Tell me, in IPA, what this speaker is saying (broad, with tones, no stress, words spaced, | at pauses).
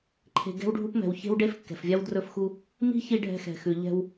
ǃʰe̤˨ ɡɛ̤˦wɖʱu˦p mɛ̤˨wçe̤˦wɖe˦f kːɛ̤˨fvʲa˦w drɵ˧fxu˧ | mi̤˦çi˧ ɖʱɛ̤˧xɛ̤˨xʉ˨ ʎɛ̤˧w